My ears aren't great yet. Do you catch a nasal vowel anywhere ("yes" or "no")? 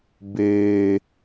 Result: no